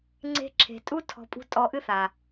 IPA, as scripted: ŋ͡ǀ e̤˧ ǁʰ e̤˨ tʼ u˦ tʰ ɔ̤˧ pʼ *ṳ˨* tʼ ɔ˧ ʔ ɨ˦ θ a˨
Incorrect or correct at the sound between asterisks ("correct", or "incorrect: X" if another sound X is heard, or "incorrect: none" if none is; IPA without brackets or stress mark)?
incorrect: ṳ˦